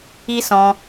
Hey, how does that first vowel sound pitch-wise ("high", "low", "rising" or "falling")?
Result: high